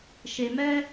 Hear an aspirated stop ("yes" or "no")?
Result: no